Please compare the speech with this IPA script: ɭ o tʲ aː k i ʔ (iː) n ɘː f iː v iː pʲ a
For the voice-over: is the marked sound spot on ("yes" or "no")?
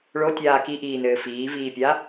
yes